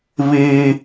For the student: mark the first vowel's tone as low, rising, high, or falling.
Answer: high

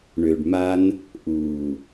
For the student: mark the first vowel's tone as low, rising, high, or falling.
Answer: low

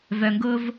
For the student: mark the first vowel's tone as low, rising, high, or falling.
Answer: low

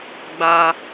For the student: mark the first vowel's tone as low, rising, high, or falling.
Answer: high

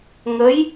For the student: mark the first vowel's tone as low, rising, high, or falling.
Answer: rising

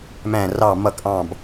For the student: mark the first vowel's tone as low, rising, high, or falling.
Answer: falling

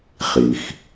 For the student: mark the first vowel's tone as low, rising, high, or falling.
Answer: low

